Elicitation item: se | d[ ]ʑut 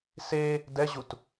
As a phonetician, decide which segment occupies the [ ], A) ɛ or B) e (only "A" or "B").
A